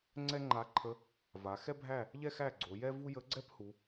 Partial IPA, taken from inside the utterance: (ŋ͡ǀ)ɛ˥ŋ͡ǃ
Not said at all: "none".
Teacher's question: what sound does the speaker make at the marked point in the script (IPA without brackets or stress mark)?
ŋ͡ǀ